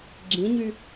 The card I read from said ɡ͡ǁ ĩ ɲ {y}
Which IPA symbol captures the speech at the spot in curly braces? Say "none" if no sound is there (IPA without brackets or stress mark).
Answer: y